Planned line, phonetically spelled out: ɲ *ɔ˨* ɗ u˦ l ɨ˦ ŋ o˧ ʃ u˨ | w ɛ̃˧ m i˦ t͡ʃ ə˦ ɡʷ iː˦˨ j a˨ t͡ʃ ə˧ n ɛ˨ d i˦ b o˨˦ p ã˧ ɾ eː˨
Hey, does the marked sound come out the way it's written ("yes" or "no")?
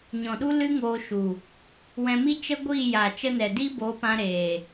no